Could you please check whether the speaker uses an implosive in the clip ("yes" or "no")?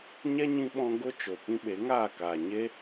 yes